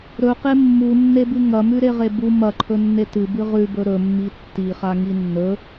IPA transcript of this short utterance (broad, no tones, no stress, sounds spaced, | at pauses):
ɾ ɵ q e mː u nː e b ɨ ŋ ɐ m ʉ ɾ e ʁ e b u m ɐ ǃʰ ɵ nː e t ɨ b ɨ ʁ ʉ b ɵ ɾ ɵ mː i tː i χ a ŋ i nː ɵ